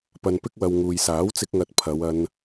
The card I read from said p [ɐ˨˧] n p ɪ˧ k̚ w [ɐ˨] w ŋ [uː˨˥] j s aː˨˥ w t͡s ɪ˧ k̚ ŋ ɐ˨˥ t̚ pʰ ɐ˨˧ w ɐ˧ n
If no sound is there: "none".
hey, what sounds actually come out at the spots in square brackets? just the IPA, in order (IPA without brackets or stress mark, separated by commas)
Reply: ɐ˨, ɐ˨, uː˨